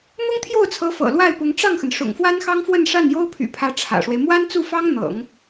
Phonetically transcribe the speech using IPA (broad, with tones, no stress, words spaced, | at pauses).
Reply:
n̪ʊ˥ŋt̪ʰjo˥˩ʊ̯t͡sʰɤ˧˥ fɤ̰˨˩ lwa˥˩ɪ̯pʊ˧˥ŋ ʈ͡ʂɑ˥˩ŋxə˩n ʂʊ̰˨˩ŋfwa˥nxɑ˥ŋfwə˥˧n ʂa˥˩njo˥ʊ̯pʰy̰˨˩pʰä˧˥ ʈ͡ʂʰä̰˨˩ʂwe˦ɪ̯ mwa˥nt͡su˥˩fɑ˥ŋ n̪ɤ̰˨˩˦ŋ